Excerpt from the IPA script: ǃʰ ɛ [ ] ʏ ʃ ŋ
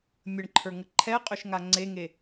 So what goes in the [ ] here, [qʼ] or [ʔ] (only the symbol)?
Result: qʼ